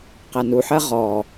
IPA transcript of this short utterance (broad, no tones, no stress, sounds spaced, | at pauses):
q æ n u ħ ɜ ʁ ɔ